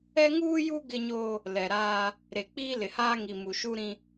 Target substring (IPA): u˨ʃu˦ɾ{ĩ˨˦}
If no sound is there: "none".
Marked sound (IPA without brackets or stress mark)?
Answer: ĩ˦